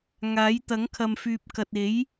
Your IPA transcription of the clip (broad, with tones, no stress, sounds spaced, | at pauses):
ŋ aː˨˥ j t̪ ɐ˨˥ ŋ kʰ ɐ˨ m f yː˨ p̚ k ɐ˨ t̚ e˨˥ j